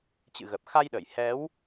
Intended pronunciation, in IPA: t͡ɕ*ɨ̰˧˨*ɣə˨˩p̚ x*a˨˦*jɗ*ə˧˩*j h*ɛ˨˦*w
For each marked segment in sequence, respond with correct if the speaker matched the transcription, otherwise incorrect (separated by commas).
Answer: correct, incorrect, correct, correct